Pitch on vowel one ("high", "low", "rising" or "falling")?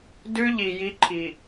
high